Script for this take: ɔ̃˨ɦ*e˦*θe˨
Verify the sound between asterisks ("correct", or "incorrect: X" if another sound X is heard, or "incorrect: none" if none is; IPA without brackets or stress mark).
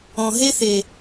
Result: correct